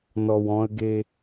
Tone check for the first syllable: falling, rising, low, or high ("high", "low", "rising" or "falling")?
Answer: low